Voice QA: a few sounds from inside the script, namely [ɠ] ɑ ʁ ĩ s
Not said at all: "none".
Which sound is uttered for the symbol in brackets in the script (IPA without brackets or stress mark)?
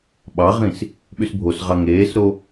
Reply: ɓ